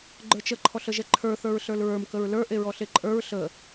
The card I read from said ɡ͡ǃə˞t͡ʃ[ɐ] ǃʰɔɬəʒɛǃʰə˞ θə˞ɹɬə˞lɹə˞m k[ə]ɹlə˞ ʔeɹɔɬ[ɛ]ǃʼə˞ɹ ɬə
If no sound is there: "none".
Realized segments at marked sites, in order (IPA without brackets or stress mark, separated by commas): ə, ə, e